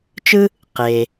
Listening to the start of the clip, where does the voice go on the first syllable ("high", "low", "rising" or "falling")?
high